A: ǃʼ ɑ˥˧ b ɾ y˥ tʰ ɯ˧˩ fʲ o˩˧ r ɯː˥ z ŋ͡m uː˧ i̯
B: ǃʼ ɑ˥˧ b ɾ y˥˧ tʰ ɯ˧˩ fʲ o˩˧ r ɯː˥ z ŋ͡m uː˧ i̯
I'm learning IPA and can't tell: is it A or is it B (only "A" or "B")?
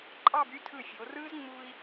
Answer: A